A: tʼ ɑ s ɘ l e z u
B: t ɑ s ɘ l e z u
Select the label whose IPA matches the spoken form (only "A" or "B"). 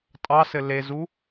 A